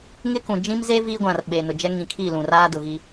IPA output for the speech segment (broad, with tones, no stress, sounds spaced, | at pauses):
ŋ ɪ˦ k ũ˨ d͡ʒ ĩ˦ m z e˦ v iː˦ ɡʷ ã˨ r ɓ eː˨ n ʊ˨ d͡ʒ ɛ˦ ŋ ĩ˨ kʰ i˦˨ l ũ˨ r aː˦ d ʊ˨ ɣ i˦